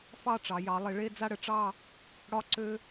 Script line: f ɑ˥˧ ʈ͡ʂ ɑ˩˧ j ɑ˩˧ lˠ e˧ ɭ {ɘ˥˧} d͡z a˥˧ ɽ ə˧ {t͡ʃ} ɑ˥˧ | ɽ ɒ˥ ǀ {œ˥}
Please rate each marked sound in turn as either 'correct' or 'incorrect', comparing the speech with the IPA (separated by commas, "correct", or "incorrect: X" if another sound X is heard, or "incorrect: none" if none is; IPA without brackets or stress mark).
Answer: incorrect: e˥˧, incorrect: ʈ͡ʂ, incorrect: ø˥